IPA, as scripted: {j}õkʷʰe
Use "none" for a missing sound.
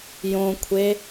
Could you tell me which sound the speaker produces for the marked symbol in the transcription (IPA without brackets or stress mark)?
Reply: j